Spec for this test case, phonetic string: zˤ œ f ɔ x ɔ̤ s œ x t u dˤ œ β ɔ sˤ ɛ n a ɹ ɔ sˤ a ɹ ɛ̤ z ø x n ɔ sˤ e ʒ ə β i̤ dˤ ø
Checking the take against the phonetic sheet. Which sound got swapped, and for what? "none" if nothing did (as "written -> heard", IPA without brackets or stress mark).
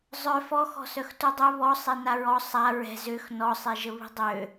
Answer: none